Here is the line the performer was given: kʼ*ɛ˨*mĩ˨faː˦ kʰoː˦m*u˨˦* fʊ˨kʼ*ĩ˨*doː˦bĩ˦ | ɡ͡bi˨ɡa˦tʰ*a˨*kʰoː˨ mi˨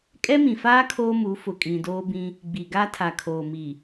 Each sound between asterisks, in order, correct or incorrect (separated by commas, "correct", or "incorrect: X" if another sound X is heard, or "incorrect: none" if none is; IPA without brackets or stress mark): incorrect: ɛ˦, correct, correct, correct